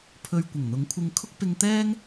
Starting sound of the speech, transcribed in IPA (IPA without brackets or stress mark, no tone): pʰ